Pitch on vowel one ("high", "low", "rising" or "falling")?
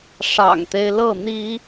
low